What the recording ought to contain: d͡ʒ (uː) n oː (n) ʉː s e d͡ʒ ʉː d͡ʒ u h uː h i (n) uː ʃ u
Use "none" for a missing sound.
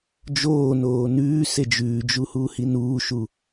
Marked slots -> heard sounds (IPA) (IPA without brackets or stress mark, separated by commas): oː, n, n